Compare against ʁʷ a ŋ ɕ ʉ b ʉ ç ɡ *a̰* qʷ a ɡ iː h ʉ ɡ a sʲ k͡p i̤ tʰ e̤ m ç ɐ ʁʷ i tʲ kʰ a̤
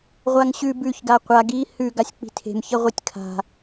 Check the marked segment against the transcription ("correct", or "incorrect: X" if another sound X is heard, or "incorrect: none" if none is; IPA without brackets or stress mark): incorrect: a